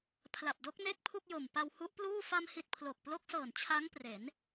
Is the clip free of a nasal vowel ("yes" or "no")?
yes